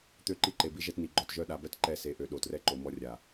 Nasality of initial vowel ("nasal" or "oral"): oral